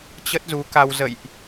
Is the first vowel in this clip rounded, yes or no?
no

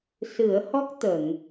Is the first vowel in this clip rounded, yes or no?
no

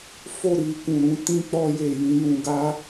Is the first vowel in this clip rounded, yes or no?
yes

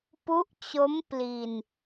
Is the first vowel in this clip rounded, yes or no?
yes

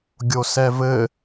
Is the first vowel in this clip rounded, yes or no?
yes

